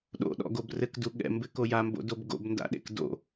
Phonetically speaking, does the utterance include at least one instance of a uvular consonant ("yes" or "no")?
no